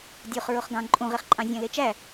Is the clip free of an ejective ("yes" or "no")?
no